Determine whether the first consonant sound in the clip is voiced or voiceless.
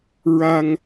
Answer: voiced